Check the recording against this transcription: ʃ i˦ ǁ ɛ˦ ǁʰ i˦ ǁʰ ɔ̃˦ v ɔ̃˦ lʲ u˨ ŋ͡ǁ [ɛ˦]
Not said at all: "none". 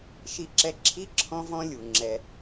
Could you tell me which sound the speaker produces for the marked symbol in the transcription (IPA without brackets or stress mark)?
ɛ˦